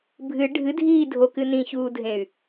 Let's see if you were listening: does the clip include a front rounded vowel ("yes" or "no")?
yes